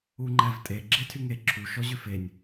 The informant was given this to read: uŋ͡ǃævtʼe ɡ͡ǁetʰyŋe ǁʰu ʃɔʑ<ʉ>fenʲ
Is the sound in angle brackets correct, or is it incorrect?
correct